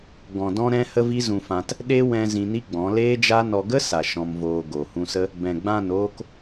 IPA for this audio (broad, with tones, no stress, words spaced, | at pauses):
ɡɔ̃˨dɔ̃˧ɾɛ̃˧ hə˦vi˦zũ˧fã˧t | ɗe˦wɛ̃˧ zĩ˧ni˦ɡ͡bɔ̃˨˦ leː˦d͡ʒa˦nɔ˧ ɡə˦sa˨ ʃɔ̃˧mvoː˧ ɡo˨hũ˧sə˦ | bɛ̃˨ɡ͡bã˦˨noː˦k